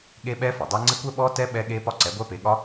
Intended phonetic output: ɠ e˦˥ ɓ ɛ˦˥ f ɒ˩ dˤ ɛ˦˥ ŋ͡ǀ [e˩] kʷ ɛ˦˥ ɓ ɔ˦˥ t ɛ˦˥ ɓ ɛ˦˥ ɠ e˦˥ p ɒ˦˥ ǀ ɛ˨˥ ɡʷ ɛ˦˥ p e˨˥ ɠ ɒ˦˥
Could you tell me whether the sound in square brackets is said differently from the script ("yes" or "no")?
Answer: yes